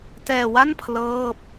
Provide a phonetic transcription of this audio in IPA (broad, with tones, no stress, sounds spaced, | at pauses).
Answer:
t ɛː˧ w a˥˩ n pʰ l ɤː˥˩ p̚